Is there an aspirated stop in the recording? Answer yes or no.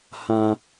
no